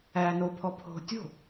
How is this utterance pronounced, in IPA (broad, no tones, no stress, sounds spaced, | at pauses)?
æː n o pʰ ɔ pʰ o̤ tʲ o̤